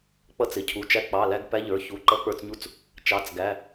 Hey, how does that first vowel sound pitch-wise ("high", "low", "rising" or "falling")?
rising